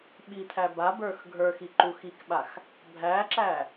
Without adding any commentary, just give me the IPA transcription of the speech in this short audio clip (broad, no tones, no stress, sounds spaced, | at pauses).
ɓ i t̪ʰ æ b a b ə˞ x ɡʱ ə˞ x i ǃ u x i k ɓ a x | bʱ æ ǁ æ